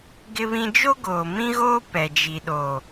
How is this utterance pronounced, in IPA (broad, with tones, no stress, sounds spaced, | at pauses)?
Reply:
ɡ ɪ˦ β ĩ˦ d͡ʒ o˦ ɡ oː˨ m ĩ˦ ɣ oː˦ p ɛ˨ d͡ʒ i˨ ɗ o˨